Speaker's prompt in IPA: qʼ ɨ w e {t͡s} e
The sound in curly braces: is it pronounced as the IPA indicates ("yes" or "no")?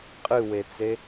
yes